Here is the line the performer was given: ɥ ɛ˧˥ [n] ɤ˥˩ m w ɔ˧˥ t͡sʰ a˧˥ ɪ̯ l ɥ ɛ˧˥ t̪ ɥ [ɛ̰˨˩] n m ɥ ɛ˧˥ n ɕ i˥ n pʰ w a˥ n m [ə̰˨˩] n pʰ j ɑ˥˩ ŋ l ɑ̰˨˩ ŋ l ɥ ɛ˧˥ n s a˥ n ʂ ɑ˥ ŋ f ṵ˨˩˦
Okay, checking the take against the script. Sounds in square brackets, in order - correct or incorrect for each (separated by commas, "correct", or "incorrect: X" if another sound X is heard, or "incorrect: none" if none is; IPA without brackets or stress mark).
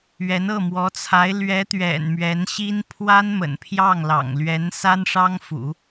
correct, correct, correct